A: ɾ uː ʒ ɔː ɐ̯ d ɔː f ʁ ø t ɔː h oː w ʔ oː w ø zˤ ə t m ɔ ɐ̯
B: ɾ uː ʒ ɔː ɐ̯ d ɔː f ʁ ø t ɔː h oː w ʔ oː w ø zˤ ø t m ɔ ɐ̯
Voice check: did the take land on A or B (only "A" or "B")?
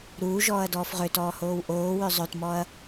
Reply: B